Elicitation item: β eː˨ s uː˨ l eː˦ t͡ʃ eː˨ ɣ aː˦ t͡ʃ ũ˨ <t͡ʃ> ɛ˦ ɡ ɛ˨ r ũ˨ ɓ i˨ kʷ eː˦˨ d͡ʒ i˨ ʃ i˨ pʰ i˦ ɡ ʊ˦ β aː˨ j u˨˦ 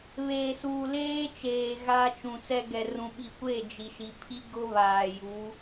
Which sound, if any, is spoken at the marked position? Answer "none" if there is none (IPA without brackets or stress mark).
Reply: t͡s